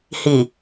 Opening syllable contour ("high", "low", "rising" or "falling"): low